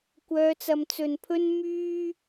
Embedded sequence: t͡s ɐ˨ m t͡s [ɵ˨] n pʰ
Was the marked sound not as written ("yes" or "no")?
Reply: no